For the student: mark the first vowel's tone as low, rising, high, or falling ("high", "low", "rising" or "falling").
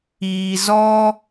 low